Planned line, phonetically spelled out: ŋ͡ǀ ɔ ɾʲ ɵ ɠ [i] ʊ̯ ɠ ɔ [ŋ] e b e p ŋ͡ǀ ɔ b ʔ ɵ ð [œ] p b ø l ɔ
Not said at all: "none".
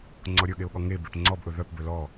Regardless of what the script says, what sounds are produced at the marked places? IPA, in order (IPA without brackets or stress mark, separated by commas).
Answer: e, ŋ, œ